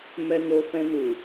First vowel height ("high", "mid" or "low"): mid